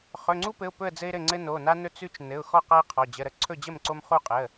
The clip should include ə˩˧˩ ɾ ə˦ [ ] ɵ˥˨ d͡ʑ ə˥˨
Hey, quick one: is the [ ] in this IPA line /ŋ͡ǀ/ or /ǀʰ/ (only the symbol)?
ǀʰ